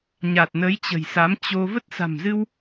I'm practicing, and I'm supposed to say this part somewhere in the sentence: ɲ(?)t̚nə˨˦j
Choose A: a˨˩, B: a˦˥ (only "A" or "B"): A